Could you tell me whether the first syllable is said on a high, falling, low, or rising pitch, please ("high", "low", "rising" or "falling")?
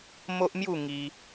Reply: high